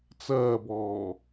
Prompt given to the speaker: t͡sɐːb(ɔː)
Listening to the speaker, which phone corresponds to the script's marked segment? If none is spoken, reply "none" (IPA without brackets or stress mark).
ɔː